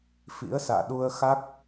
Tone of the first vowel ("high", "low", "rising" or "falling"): rising